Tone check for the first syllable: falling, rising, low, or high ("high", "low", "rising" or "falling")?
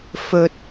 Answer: low